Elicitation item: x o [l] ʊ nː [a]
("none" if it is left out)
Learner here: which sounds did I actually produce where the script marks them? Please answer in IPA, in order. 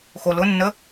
l, ə

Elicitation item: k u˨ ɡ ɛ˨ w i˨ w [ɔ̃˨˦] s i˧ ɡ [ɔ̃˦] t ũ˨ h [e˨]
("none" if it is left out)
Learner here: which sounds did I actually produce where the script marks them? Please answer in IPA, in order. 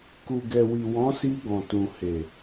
ɔ̃˨˦, ɔ̃˨, e˨

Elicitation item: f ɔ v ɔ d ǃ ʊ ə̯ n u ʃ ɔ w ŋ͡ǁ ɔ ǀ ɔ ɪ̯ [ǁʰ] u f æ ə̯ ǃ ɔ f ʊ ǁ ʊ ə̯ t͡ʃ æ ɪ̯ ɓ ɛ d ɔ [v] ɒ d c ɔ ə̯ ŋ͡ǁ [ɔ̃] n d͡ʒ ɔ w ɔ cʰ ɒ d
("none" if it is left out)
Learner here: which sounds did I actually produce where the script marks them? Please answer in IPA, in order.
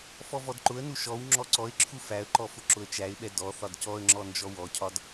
ǁʰ, θ, ɔ

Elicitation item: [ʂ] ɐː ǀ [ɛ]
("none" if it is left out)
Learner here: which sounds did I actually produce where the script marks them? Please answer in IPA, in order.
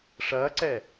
ʂ, ɛː

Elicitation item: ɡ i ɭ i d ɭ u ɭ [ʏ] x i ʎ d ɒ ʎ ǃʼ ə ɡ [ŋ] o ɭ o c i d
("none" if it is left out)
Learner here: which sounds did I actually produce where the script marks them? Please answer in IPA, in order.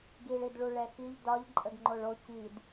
ɛ, ŋ͡ǃ

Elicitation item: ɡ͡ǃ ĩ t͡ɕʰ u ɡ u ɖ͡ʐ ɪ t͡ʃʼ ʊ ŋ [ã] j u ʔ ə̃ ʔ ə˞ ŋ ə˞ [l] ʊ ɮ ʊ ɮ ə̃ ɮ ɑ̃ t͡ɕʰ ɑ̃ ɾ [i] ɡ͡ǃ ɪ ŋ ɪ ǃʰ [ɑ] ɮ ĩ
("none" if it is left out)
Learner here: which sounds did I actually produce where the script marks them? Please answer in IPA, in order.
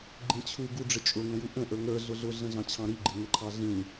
ə̃, ɮ, i, ɑ

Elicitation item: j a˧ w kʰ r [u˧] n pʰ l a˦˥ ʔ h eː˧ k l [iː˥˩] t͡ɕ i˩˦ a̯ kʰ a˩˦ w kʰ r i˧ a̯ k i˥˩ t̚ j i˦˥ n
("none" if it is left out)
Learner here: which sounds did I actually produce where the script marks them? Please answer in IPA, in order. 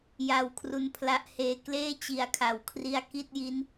u˧, eː˥˩

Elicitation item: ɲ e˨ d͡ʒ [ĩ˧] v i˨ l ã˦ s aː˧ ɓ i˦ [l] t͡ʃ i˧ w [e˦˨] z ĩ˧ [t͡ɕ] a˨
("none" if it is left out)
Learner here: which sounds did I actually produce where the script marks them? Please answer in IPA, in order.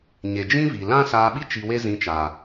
ĩ˦, none, e˦, t͡ʃ

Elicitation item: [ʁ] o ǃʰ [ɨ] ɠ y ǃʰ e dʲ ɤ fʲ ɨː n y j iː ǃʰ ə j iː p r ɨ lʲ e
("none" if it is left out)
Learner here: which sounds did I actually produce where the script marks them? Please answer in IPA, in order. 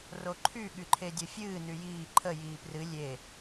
r, y

